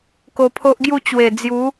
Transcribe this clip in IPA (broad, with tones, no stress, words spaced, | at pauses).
ko˧pʰo˦ʔɡju˥˧ t͡ɕwe˨˩d͡zju˨˦